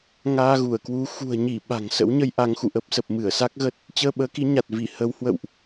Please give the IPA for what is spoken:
ŋ aː˧ ɣ u˧˩ ə̯ k w u˨˦ x ṳ˨˩ ə̯ ɲ i˧˩ ɓ a̤˨˩ ŋ s ə̰˧˥ w ɲ ə˧ j ʔ a˨˦ ŋ x ṵ˧˨ ʔ ə˦˥ p̚ s ə˨˩ p̚ m ɨ˧˩ ə̯ s a˦˥ k̚ ɣ ə˦˥ t̚ | t͡ɕ əː˧ ɓ əː˨˦ k i˨˦ ɲ a˨˩ t̚ v i˧˩ h ə˨˦ w h w ə̰˧˨ w ʔ

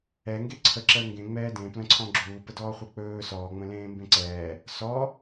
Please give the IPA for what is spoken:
ɛ ŋ ɡ e ǀʰ ə ǁ əː ŋ ɡ ẽ ŋ͡m ɛː d ẽ p l ə̃ ǀʰ ɔ̃ ɡ͡ǁ uː p ə d ɔː χʷ e k͡p ɵː s ɔː ŋ͡m ə̃ l ẽː m b ẽ ǀ ɛː | s ɔ

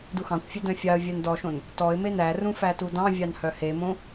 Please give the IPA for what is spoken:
d u x ɑ̃ kʷ fʲ ɵ d œ̃ fʲ ɑ ə̯ vʲ œ n d ɔ ʃ õ n | t ɔ ɪ̯ m e n æ r ũ f æ t u d ɑ̃ vʲ ɑ n h œ h e m õ

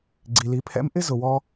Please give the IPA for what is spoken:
ɡ͡ǀ i˩ l i˩˧ pʰ ɛ̰˧˥ m ʔ ɪ˥ z ʊ˩ w ɔ˧

